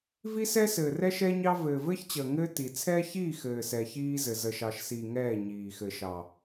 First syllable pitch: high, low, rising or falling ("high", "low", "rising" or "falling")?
high